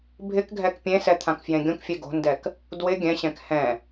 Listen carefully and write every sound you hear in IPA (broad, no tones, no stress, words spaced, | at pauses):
bʱɪkɡʱɛk pʲẽsɛ t̪ʰãkfjẽɡʲõkfʲe ɡo̤ndɛk | dwɪ ɡʲɛ̃ɕɛ̃k hɛ̃